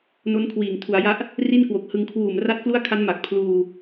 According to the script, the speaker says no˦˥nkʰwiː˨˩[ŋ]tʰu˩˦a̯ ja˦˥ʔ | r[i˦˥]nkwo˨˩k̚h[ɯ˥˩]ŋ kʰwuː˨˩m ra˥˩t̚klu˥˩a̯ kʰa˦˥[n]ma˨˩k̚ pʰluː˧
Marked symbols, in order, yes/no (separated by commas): yes, no, no, yes